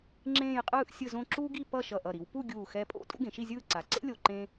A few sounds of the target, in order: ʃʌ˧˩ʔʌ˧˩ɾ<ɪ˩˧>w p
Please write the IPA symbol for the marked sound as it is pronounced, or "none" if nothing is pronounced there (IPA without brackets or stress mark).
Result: i˩˧